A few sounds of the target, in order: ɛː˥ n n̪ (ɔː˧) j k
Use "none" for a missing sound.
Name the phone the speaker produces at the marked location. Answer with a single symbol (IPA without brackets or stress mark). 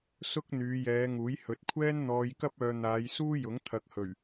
ɔː˧